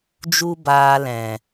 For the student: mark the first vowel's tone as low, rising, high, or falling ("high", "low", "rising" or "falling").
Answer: high